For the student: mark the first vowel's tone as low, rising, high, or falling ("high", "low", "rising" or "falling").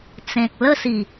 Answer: low